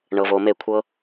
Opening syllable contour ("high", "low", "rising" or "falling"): low